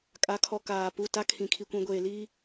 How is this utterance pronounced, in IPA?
kʼ a˨˦ kʰ ɔ˨ k aː˨ p u˦˨ t a˦ kʰ ĩ˨ kʰ i˨ kʷ ĩ˨ ɡʷ eː˨ l iː˦

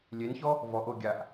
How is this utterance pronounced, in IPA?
lʲ e n ç ɔ | v ɔ ʔ o ɡʲ a ʔ

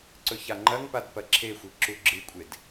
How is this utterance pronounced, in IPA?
ǀ ɵ ç a ŋ͡ǃ ɐ ŋ p a d p ɐ ǁʰ e xʷ i ǁ u ɡ͡ǁ ɨ kʷʼ e d

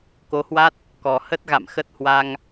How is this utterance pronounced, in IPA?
k o˨˦ h w a˦˥ t̚ | k ɔ˨˩ h ə˦˥ t̚ ɣ a̰˧˨ m x ə˦˥ t̚ h w a˧ ŋ

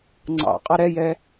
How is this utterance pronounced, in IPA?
ŋ͡ǀ ɑ̰ qʼ ɑ ɾ ɛ j ɛ

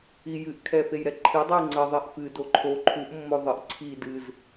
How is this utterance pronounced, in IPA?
i j ɨ ʔ kʰ ɛ f e j ɾ ɛ ǃʰ i dˤ ɨ j ŋ͡ǀ ə ðˤ e ʔ f ɨ d o ǃʰ o ǃʰ u ʔ mː o ðˤ ɨ ʔ ǀʰ i d ɨ z

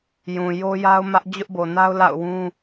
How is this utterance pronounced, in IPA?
j ũ˨ j o˦ j a˦ ʊ̯ m ä˦ ʔ d͡ʑ ʊ˦ ʔ b o˨ n a˦ ʊ̯ l a̰˦˨ ʊ̯ w ũ˦

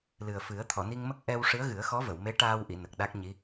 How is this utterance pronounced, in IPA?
l ɨ˨˩ ə̯ f ɨ˨˩˦ ə̯ t̪ʰ ɔ˨˩˨ n i˧ ŋ m ə˦˥ k̚ ʔ ɛ˧ w ʂ ɨ˧˥ ə̯ ɣ ɨ˨˩˦ ə̯ x ɔ˧˥ v ə˨˩˨ w m e˧˥ ʈ aː˧ w ʔ i˨˩˨ n ə˨˩ k̚ ɗ a˦˥ k̚ ɲ i˧˥

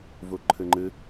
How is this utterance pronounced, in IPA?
v u ǃʰ ɨ ŋ͡ǃ ɨ

